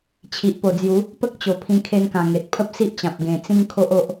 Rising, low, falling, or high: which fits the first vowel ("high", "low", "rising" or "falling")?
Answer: low